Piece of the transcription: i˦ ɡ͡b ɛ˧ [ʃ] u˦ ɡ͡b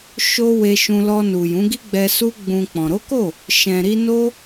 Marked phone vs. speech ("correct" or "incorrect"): incorrect